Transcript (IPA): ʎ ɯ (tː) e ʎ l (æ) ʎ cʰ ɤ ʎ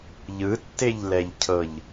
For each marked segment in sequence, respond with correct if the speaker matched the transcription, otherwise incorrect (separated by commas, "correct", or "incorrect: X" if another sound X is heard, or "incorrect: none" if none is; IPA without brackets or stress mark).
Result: correct, incorrect: ɛ